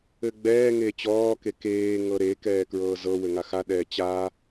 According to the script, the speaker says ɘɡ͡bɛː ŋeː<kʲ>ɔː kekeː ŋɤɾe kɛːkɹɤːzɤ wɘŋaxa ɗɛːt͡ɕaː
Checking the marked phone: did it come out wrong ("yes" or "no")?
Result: yes